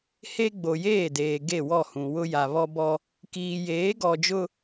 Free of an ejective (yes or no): yes